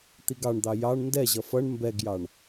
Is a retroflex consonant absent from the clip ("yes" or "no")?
no